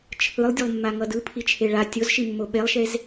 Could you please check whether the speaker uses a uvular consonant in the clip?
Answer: no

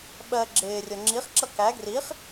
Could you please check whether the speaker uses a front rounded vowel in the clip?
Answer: no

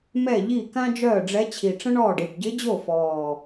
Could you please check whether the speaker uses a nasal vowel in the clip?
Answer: yes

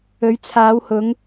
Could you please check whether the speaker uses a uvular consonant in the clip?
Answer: no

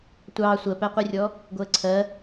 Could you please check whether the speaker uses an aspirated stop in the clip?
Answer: yes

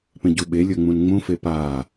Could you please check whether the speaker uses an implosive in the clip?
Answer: yes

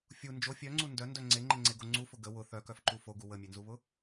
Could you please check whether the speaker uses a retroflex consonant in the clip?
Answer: no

